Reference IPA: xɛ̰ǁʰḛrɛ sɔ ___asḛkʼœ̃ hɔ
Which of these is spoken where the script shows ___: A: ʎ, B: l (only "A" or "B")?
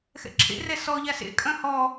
A